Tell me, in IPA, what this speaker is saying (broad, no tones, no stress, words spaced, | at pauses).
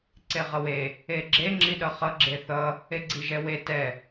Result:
ǀeʁʌwe | eɡ͡ǁe ŋ͡ǁiɗʌχʌ ɡ͡ǁeθʌ | eɡ͡ǀiʒɛwe tɛ